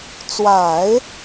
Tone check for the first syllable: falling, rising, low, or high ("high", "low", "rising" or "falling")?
low